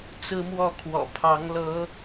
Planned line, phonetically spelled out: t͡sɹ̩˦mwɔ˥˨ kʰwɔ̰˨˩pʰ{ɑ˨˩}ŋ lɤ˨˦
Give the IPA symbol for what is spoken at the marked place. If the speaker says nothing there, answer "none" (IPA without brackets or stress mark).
ɑ˨˦